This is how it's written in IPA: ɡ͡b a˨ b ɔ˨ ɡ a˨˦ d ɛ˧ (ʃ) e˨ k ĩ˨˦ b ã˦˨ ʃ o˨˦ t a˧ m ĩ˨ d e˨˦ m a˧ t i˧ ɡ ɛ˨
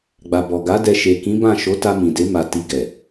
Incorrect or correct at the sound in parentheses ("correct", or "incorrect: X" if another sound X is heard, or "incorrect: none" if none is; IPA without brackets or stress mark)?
correct